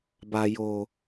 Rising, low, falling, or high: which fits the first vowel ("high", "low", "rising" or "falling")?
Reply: low